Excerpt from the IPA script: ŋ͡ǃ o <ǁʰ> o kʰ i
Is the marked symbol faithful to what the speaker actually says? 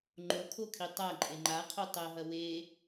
no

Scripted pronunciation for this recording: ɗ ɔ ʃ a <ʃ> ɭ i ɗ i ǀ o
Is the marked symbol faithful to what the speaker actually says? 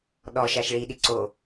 yes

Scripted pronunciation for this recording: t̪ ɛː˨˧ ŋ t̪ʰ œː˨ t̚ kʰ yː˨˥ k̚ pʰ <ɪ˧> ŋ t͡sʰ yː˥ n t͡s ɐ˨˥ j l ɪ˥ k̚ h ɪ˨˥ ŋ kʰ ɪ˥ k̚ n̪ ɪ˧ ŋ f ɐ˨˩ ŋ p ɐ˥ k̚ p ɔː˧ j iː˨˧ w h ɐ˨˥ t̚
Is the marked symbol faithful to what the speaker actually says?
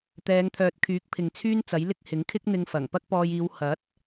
no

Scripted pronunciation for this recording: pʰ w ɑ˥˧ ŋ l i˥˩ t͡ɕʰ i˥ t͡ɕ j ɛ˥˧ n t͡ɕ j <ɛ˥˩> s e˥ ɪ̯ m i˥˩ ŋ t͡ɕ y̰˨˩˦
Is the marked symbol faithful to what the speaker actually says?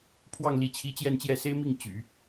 yes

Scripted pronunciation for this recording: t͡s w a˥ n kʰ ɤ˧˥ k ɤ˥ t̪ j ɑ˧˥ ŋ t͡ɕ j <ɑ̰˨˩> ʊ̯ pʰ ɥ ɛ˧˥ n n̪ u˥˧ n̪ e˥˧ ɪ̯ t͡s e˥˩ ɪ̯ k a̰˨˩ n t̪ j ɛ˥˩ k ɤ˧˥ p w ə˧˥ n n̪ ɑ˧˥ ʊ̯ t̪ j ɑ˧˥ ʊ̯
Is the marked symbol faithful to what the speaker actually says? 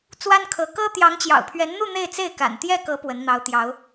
yes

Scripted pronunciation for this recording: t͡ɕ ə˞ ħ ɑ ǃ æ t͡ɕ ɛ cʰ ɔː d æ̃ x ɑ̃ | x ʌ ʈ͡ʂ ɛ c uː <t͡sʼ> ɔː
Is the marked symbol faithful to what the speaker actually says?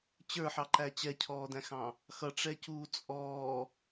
yes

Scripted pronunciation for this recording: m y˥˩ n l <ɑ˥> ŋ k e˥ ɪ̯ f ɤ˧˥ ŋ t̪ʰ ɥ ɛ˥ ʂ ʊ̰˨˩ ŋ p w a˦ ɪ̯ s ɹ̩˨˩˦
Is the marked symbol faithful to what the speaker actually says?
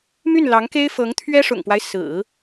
no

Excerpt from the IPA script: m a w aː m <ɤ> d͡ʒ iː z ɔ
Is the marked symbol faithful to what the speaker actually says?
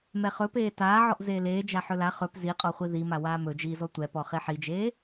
no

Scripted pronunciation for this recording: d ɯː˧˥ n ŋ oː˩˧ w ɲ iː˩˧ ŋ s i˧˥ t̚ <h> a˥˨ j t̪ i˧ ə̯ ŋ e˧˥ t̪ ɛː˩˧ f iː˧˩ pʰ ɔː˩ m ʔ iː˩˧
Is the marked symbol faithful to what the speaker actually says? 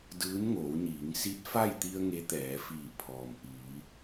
no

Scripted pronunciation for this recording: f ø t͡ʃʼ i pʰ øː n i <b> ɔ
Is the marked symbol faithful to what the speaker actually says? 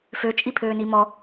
no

